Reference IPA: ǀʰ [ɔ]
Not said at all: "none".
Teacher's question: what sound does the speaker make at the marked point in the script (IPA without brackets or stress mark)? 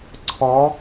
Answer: ɔ